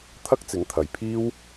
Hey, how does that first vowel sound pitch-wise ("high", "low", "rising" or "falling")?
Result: high